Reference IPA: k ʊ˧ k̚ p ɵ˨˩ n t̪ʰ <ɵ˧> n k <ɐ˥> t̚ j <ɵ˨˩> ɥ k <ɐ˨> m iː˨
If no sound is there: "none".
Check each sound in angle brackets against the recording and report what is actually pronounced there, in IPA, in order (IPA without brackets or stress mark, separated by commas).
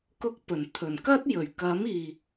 ɵ˨˩, ɐ˥, ɵ˨˩, ɐ˨˥